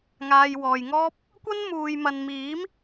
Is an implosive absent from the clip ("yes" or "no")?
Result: yes